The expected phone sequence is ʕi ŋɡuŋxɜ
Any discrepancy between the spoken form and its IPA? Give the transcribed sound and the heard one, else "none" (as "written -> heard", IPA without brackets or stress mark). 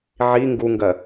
x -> ɡ